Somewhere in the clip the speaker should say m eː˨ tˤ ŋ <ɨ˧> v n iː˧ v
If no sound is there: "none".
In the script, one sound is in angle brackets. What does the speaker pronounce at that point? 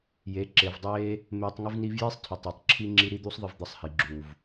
ɨ˧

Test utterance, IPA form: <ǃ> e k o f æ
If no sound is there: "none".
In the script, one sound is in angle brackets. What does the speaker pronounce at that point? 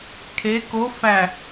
kʰ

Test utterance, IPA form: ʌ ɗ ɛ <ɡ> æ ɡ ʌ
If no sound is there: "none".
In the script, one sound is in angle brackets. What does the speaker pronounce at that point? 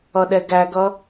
ɡ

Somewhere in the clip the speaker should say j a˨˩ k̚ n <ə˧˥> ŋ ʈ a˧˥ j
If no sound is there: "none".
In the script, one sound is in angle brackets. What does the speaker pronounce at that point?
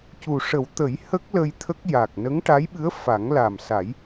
ə˧˥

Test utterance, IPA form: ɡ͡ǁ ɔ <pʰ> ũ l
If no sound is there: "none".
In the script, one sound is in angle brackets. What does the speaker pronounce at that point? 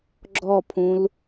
pʰ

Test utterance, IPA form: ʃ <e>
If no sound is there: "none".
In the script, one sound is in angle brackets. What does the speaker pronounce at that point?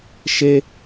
e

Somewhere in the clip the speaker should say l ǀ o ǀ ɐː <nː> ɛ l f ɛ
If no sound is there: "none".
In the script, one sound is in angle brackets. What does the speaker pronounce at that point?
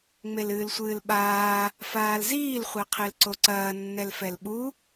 nː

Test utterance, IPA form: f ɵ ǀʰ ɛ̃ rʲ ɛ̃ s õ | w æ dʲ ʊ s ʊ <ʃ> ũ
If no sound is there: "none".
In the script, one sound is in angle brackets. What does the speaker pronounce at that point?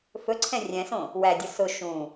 ʃ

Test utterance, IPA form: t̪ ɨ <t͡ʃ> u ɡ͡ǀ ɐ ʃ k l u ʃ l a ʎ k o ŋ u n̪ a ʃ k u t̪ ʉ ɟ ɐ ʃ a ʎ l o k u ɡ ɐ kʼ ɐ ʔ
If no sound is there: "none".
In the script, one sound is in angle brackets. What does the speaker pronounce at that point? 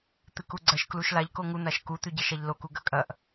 k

